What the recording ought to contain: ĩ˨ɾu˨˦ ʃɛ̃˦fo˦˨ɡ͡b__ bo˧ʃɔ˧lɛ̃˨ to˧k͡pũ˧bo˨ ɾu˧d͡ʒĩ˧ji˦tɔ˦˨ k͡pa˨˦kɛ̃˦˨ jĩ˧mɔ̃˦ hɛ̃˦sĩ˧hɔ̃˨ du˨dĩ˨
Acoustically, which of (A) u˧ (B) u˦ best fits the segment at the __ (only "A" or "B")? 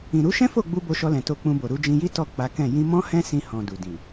A